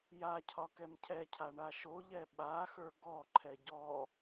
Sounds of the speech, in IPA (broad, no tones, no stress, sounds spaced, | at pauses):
j a cʰ ɒ k ɛ m cʰ ɛ cʰ a ɳ a ʃ o ʎ ɛ ɓ a x ə˞ ɡ ɔ ǃʰ ɛ ɟ ɔ